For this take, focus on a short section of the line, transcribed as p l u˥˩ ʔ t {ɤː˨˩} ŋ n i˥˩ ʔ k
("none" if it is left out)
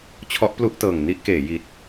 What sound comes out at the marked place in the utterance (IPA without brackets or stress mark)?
ɤː˨˩